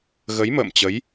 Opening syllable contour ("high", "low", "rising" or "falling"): rising